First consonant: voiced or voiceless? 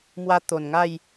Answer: voiced